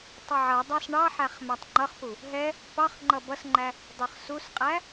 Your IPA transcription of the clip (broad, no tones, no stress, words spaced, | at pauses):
tˤʌʕʌdˤɑs ɳɑħæχ mætˤŋ͡ǃʌχpu | ɦɛ | pɑχ ŋ͡ǃʌbʌsŋ͡ǃæ | dˤə˞χsusqʼæ